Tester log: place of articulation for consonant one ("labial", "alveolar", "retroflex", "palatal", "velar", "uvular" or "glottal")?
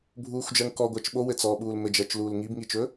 labial